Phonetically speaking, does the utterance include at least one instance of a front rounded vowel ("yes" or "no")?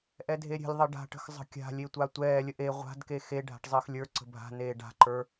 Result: no